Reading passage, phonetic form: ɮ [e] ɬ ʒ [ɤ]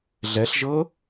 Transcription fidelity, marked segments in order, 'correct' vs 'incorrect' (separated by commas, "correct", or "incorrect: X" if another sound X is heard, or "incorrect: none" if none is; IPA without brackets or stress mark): incorrect: ɛ, correct